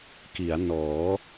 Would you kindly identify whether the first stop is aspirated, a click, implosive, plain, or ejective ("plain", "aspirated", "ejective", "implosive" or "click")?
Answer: plain